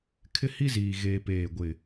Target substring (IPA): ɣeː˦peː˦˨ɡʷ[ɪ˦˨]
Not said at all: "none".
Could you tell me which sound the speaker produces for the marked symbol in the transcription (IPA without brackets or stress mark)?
ɪ˦˨